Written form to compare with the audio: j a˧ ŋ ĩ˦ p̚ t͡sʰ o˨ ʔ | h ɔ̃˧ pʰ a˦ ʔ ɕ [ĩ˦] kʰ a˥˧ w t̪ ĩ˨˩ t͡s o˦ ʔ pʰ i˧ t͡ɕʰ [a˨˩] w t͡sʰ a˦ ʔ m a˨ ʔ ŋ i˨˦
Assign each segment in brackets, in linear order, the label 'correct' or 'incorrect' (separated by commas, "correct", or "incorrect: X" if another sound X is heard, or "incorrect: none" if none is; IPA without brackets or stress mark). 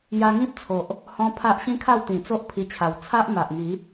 correct, correct